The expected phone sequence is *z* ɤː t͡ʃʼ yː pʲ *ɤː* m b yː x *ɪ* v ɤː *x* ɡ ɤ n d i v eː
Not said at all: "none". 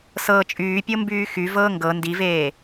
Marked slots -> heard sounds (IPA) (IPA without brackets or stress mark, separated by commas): s, ɤ, y, ŋ